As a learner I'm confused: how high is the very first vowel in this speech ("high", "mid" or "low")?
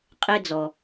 mid